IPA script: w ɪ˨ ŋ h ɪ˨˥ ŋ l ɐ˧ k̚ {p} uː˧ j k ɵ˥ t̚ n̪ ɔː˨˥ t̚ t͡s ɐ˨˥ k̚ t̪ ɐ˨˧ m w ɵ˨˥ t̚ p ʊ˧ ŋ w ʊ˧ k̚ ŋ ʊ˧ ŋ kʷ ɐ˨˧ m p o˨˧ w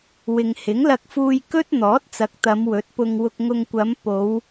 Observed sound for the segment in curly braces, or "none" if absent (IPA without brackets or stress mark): f